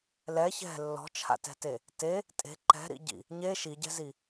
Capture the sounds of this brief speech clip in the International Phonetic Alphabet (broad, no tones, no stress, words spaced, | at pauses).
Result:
lɛ çɛ̤ lːɔ̤t͡ʃʰa̰tɛ̤te | te | tʼe̤ ǃɛ̤ɾḭɟḭ | ɲe ʃiɟɛ̤zi